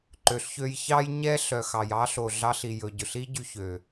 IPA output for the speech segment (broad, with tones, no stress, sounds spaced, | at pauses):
ǃ ø˨ ɬ ç ø˧ j ç ɑ˦ j ɲ ɛ˦ ɬ œ˨ x ɑ˨ j ɑ˦ ɬ o˨ ɮ ɑ˧ ɬ i˨ j ɵ˨ ɟ ɵ˨ ɬ i˦ ɟ y˧ ç ø˨